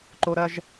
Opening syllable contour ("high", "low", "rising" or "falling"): high